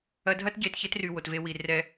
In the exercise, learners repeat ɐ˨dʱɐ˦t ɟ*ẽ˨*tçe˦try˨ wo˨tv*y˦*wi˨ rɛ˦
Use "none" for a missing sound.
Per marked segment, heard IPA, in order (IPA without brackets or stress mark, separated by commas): e˨, e˦